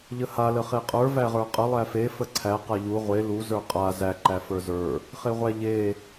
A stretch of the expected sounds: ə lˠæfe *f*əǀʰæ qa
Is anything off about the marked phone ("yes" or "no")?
no